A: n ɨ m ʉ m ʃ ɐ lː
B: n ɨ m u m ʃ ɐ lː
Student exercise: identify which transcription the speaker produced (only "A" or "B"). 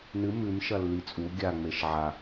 A